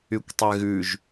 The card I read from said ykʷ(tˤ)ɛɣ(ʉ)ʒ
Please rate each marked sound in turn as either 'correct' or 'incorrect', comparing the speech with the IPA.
correct, correct

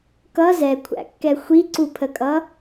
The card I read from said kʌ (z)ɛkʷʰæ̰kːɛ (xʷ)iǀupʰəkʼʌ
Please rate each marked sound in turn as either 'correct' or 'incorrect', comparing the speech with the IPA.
correct, correct

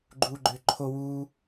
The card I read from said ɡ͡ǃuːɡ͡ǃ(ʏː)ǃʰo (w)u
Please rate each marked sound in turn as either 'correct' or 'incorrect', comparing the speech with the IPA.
correct, correct

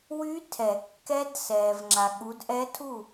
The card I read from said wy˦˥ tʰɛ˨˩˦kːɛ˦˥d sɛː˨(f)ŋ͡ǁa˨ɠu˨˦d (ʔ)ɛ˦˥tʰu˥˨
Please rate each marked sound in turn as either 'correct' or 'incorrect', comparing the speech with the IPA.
incorrect: v, correct

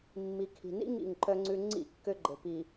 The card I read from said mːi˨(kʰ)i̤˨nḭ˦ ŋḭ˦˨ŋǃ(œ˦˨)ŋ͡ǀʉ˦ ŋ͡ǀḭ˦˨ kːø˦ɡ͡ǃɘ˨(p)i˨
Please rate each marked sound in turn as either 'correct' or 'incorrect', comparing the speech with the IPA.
correct, incorrect: œ˦, correct

